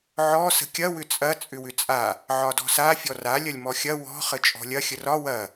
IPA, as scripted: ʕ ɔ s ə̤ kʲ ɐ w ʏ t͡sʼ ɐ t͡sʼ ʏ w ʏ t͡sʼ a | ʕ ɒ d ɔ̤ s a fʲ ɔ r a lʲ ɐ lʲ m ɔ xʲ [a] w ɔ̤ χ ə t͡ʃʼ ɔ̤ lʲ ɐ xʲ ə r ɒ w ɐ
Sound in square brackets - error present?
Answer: yes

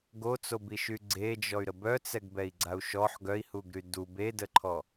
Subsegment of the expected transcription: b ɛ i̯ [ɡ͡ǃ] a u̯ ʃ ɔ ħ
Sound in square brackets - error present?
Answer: yes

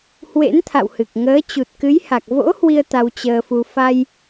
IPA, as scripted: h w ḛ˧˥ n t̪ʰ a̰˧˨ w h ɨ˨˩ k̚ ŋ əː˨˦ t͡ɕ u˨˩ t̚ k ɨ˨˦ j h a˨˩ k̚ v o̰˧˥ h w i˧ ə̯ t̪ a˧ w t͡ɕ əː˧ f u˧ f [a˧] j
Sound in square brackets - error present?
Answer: no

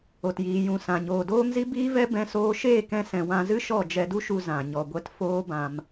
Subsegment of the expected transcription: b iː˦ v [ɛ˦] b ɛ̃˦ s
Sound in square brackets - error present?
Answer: no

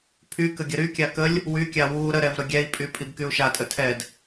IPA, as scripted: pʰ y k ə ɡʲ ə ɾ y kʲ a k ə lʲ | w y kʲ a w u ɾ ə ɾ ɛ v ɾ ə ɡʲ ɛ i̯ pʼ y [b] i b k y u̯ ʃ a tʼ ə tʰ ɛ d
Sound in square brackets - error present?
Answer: yes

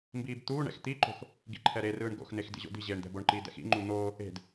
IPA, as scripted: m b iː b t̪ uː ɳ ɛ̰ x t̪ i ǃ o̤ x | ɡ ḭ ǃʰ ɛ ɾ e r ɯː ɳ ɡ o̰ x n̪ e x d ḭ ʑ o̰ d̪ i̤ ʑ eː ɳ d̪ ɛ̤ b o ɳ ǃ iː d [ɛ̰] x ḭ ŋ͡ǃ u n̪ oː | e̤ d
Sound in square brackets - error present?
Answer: no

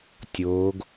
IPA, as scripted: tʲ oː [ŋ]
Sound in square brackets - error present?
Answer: yes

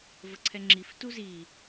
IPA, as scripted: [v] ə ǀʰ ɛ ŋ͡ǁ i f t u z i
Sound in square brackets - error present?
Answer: no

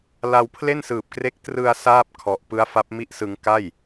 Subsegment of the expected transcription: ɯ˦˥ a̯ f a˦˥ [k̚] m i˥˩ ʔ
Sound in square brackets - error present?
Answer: yes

